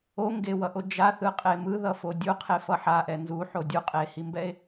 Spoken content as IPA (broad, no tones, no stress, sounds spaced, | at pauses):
o ŋ ɡ e w ʌ ʔ o d͡ʒ a θ ɯ qʼ e m ɯ ð ʌ f o dʲ u qʰ e f ʌ ħ a ʔ ɛ n z u ħ o dʲ u qʼ e h i m b ɛ e̯